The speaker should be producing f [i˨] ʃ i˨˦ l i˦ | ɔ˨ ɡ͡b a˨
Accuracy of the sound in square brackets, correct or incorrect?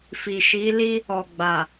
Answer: correct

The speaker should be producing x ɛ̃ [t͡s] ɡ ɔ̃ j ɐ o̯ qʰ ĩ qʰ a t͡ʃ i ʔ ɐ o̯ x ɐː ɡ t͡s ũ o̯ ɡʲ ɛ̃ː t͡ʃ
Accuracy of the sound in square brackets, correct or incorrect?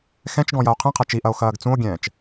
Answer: incorrect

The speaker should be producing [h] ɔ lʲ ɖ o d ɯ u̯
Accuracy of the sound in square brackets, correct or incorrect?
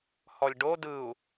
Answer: correct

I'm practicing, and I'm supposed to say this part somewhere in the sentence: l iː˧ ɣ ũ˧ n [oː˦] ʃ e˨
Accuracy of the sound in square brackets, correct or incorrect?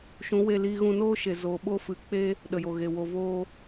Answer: correct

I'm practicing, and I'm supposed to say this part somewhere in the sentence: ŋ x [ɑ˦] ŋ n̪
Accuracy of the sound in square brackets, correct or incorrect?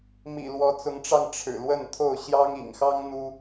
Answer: correct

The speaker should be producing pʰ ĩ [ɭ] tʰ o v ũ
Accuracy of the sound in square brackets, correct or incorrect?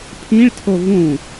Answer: correct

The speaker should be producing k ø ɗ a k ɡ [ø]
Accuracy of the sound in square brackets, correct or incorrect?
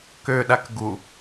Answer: incorrect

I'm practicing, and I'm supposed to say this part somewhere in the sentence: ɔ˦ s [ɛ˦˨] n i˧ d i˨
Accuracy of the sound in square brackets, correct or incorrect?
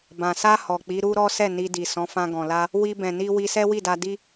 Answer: correct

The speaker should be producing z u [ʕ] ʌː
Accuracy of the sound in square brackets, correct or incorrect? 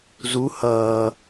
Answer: incorrect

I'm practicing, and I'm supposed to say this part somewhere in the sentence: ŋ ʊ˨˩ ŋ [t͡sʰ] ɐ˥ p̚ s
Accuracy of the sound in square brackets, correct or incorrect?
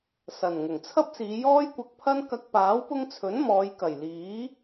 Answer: correct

